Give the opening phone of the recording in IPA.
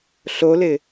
ɬ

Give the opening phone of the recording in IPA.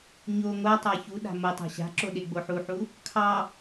ɲ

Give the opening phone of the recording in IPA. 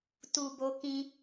t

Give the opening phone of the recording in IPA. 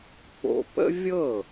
k͡p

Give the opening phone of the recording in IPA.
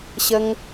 ɕ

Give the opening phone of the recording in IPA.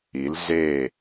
i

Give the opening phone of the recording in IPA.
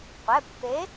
qʷ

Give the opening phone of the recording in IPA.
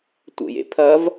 tʷ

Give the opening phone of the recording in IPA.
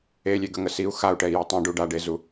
e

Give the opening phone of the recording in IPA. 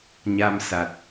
ɲ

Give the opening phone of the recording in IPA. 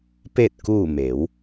p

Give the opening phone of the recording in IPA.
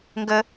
ŋ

